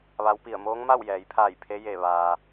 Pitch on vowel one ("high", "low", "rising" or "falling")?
rising